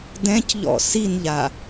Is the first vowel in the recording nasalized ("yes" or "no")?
yes